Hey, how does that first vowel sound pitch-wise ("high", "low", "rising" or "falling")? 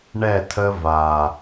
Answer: falling